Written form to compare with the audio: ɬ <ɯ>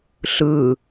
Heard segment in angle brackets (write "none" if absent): ɯ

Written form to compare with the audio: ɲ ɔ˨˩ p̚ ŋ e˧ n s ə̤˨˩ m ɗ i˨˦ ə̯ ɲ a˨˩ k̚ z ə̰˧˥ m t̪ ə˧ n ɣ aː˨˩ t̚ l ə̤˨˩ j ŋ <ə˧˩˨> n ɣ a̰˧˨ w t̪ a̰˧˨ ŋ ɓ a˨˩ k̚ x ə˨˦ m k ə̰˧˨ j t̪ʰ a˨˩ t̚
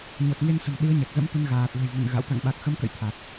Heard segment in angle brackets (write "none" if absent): ə̰˧˨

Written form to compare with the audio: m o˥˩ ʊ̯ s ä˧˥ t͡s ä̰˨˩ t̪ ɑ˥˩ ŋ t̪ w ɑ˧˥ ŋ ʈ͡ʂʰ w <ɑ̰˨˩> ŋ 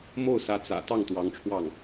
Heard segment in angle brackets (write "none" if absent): ɑ˥˩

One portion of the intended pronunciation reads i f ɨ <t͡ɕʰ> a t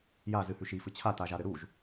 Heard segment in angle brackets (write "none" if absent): t͡ɕʰ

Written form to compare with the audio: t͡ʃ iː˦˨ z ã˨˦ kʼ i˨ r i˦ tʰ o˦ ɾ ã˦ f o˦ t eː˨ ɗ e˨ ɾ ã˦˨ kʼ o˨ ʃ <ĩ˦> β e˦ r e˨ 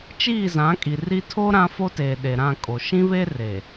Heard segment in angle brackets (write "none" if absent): ĩ˦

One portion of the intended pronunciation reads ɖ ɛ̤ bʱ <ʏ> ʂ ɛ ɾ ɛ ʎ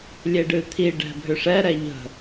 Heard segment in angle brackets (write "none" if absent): ʏ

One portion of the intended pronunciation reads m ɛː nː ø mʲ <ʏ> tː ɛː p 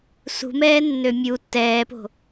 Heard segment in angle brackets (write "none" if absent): u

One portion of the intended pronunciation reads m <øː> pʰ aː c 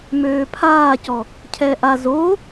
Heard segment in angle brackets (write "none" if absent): øː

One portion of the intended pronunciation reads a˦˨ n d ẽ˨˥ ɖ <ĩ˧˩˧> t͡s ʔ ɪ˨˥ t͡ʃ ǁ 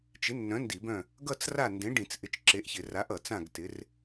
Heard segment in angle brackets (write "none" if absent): ĩ˧˩˧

